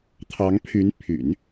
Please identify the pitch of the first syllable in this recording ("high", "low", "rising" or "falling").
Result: rising